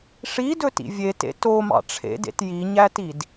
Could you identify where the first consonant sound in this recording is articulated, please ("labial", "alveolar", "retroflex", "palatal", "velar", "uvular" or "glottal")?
retroflex